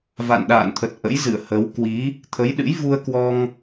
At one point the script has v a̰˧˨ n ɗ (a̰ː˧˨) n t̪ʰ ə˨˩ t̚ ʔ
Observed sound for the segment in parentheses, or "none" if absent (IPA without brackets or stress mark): a̰ː˧˨